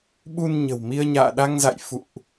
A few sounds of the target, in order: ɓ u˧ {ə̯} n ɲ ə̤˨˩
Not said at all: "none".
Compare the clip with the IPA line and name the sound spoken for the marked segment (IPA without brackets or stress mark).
none